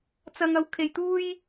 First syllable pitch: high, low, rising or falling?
high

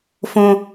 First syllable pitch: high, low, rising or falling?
high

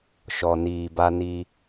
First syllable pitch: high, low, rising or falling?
low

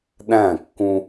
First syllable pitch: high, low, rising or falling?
falling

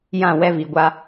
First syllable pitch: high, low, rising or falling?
falling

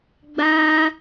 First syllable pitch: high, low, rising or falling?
high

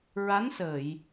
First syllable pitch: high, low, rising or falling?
rising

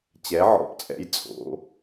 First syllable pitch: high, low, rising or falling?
rising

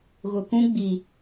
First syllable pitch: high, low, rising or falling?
low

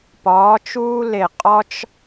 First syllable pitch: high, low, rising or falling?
rising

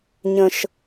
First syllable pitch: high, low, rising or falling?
high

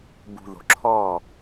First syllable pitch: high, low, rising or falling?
low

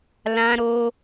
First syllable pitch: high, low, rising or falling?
high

